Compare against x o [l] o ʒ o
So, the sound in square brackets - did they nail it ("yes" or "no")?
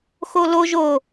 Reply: yes